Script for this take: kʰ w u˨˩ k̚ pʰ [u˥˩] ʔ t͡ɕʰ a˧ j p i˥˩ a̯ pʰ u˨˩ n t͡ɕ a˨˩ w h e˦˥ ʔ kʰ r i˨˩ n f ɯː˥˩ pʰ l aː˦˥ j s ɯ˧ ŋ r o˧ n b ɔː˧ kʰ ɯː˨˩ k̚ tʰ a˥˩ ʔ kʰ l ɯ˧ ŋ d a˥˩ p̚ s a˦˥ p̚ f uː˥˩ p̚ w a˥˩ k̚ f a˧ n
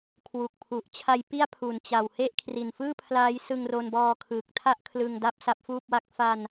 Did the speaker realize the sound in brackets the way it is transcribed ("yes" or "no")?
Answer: no